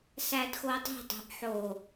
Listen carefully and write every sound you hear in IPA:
s æ d x oː dˤ æ̤ dˤ æ̤ ʔ ħ o

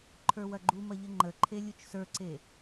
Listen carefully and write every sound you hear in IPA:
ǃʰ ə˞ w ɐ ɡ͡ǃ u m ɐ ʎ ə ŋ͡ǃ ə ǃʰ e lʲ u t͡ʃ s ə˞ ǀ e

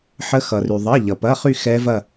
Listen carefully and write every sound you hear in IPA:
ħ ə˦˥ x ʌ˨ r y˨ ðˤ ɐ˧˥˧ ʎ ʌ˨ p ɐ˧˥˧ χ y˥˧ x ɛ˦˥ v ɐ˥˧

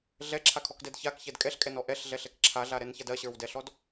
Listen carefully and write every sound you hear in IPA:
ɮ ɛ ǁʰ a kʰ ɔ k d ɛ d ç a k ç ɛ d kʼ ɛ ɬ kʼ ɛ n ɔ ʔ ɛ ɬ ɮ ɛ ɬ ɛ k ǁʰ a ɮ a ɾ ɛ n ç a d ɐ ɕ ə˞ w d ɛ ɬ ɔ d

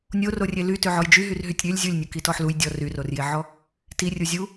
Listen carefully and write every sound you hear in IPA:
nʲ o r o rʲ e l y t ø ʕ ɔ j d͡ʒ y ɦ y r ɦ y tʲ ɾʲ ø lʲ zʲ u lʲ nʲ o k i t ɔ ħ l u j dʲ ɔ r y r o r j e ʕ ɔ | t i rʲ u zʲ u

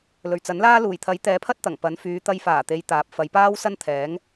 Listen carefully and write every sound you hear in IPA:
l ɵ˨˩ ɥ t͡s ɐ˨˥ n l aː˥ l uː˨˩ j t̪ʰ ɐ˨˥ j t̪ ɛː˨˧ pʰ ɐ˥ t̚ t̪ ɐ˨˩ ŋ p ɐ˨˥ n f yː˨˧ t̪ ɐ˧ j f aː˨˩ t̪ e˨˧ j t̪ aː˨ p̚ f ɐ˨˧ j p aː˥ w s ɐ˥ n t̪ʰ ɛː˨˥ ŋ

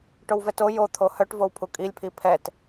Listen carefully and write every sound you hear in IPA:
ʈ o w v ɛ t o j o t̪ʰ o h œ ʈ v o w pʰ u kʼ i lʲ pʰ i pʰ ɛ t

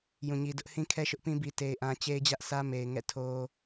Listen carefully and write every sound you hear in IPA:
j ũ˨ ɲ i˨ d ʊ˦ ʔ h ĩ˦ kʰ ɛ˦ ʃ ʊ˦ ʔ p ĩ˦ b i˨ t e˨ ɪ̯ ʔ ã˨ t͡ɕ e˦ ɪ̯ d͡ʑ ä˦ ʔ sʰ ä˦ m e˨ ɪ̯ ŋ ɛ̰˦˨ tʰ o˦

